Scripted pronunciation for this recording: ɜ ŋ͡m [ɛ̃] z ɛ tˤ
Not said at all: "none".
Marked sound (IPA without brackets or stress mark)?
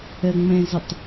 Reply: ɛ̃